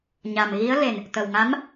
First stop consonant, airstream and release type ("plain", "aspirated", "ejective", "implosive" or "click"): plain